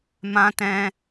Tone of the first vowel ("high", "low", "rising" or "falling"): high